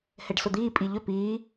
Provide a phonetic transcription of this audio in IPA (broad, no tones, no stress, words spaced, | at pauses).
hɛɖsʊd̪iː pʼiʎʏ piː